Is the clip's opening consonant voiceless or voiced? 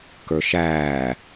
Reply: voiceless